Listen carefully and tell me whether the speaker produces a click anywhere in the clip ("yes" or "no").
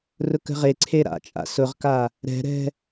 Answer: yes